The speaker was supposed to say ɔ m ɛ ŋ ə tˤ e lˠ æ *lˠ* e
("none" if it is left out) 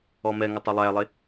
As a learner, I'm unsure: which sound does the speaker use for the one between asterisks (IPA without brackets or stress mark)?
lˠ